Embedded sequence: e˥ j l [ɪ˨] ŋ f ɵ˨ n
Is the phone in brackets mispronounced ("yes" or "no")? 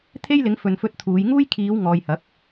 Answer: yes